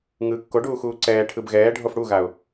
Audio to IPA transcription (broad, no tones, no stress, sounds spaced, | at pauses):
ŋ ɯ kː o ɖ uː x uː ǀ ɛː ʈʰ ɯ b ɣ ɛː ɖʱ o f ɽ u ɣ a ʊ̯